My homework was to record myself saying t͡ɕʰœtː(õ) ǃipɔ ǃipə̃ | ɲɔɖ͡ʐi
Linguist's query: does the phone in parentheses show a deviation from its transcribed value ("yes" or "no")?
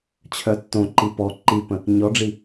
no